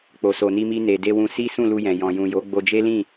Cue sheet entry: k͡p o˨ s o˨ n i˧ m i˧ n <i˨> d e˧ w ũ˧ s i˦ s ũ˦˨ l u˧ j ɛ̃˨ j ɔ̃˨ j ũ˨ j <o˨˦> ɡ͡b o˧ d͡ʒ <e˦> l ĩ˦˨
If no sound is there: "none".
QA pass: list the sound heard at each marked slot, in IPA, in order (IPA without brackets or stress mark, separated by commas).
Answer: e˨, o˨˦, e˦